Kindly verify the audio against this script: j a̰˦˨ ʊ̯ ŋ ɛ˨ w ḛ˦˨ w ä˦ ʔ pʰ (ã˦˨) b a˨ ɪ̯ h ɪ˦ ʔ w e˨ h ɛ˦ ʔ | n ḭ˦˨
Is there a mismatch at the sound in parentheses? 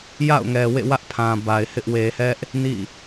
yes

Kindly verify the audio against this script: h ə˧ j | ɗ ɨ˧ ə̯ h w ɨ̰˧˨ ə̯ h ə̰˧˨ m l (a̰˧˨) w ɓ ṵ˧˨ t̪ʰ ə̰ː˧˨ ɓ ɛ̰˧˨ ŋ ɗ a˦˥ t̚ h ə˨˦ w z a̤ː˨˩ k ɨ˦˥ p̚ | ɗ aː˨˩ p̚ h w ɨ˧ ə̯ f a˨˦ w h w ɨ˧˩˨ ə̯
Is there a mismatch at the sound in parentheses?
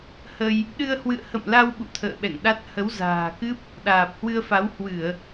yes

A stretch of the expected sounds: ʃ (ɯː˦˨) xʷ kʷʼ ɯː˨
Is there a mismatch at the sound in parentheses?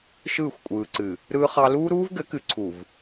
no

